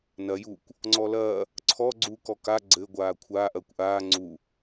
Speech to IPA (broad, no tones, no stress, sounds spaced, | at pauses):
n ɐ j u kʷ | ŋ͡ǀ ɔ l ɐː | ǀʰ ɔ ɡ͡ǀ uː k ɔ k a ɡ͡ǀ ɘ ɡʷ aː kʷʰ aː ʔ ɐː kʷ ʔ aː ŋ͡ǀ u